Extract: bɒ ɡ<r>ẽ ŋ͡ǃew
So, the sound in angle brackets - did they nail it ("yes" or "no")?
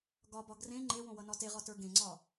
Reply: yes